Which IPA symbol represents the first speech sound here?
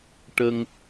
ʈ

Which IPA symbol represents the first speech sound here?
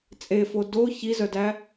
t͡sʼ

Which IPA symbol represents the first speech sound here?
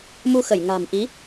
m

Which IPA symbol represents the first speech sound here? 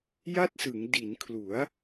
j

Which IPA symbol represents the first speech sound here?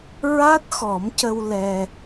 ɹ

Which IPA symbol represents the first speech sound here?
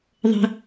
ðˤ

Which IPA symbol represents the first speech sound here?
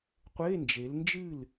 qʷ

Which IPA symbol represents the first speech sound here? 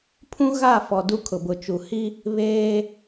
pʰ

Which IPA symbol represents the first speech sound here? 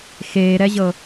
x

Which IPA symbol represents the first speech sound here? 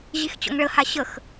ʑ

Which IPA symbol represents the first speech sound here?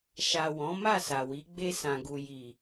ʃ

